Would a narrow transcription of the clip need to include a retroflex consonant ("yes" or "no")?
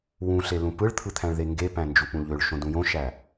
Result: yes